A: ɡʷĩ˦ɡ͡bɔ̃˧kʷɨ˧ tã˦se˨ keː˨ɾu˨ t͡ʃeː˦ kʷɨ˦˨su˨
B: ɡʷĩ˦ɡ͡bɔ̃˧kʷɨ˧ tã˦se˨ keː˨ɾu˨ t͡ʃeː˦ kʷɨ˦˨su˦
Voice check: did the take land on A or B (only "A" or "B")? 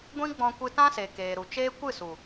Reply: A